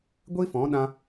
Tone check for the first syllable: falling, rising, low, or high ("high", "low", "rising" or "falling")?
high